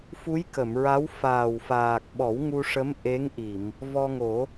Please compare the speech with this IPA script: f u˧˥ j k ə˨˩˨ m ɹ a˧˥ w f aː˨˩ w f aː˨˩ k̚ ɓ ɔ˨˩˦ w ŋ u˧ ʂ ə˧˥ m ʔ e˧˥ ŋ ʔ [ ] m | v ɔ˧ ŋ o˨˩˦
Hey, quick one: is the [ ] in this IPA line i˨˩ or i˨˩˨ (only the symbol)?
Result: i˨˩˨